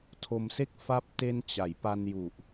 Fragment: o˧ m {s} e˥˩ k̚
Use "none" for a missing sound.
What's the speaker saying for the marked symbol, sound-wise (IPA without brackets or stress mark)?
s